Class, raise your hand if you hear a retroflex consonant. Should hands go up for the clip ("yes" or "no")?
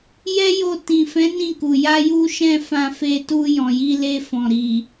no